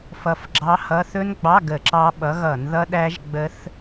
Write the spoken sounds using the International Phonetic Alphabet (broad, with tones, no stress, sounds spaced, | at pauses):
f ʌ˨˦ f ɡ͡ǁ ɑ˦˥ h ʌ˧˥˧ θ ɵ˦˥ n ɡ͡b ɑ˧˥˧ ɡ ə˧˩˧ ǁ ɑ˦˥ ɓ ʌ˨˦ ɣ ʌ˧˩˧ n ð ʌ˦˥ ɗ æ˦˥ ʒ ɡ͡b ə˦˥ θ